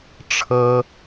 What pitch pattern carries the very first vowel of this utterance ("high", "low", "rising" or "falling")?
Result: high